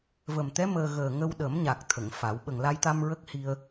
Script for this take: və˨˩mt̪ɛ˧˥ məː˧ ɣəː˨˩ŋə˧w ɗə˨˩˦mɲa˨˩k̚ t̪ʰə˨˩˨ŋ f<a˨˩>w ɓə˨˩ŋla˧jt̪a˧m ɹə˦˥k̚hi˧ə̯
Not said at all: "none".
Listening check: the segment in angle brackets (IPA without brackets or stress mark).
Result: a˨˩˦